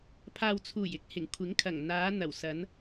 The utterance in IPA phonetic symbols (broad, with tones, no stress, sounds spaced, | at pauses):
pʰ aː˨ w t͡sʰ uː˨˩ j ɪ˥ k̚ h ɪ˨˩ ŋ kʷʰ ɪ˨˥ ŋ kʰ ɐ˨˩ ŋ n̪ aː˨˧ n̪ ɐ˨˩ w s ɐ˨˧ n